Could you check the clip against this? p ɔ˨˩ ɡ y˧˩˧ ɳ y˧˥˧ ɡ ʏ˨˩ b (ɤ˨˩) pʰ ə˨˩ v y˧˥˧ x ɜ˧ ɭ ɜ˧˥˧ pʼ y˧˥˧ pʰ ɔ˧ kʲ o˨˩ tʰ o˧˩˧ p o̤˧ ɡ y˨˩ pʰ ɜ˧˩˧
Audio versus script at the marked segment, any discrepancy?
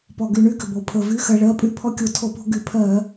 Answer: yes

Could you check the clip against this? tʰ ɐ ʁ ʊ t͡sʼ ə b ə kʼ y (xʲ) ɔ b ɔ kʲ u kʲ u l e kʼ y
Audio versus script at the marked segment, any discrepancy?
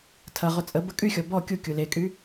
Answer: no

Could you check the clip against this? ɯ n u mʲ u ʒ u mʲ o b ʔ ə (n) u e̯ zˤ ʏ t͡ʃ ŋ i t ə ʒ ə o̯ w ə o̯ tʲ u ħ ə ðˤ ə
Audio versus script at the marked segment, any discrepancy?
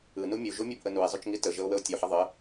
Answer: no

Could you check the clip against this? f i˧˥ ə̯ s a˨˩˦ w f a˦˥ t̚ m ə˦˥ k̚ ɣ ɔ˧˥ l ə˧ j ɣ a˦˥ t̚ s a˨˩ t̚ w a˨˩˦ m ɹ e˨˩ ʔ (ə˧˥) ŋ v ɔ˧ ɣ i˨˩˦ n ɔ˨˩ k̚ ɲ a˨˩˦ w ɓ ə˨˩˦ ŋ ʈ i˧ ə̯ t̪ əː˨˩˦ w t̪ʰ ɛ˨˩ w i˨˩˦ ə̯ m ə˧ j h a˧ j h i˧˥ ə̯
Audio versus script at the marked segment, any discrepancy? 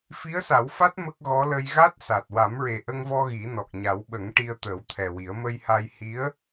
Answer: yes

